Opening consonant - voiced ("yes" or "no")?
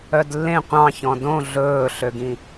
yes